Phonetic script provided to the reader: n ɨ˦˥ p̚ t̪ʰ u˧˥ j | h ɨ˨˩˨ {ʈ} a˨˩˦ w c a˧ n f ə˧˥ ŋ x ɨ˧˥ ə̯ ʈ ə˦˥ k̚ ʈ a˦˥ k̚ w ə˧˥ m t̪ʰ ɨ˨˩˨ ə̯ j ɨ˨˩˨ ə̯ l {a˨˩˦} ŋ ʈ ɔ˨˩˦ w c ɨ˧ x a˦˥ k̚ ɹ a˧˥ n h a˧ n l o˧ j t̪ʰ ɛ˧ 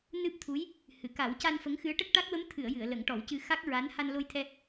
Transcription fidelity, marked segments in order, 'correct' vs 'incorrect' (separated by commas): incorrect, incorrect